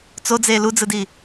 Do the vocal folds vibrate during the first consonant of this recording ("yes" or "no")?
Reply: no